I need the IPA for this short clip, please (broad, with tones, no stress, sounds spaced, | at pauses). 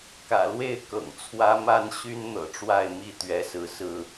k ä̰˨˩ l w e˥˨ ɪ̯ k ɤ̰˨˩ ŋ t͡sʰ w ä˦ m a˦ n ɕ y˦ n n̪ ɤ̰˨˩ ʈ͡ʂ w a˥˨ ɪ̯ m i˥˨ t̪ ɥ ɛ˨˦ s ɹ̩˨˦ s ɹ̩˥˨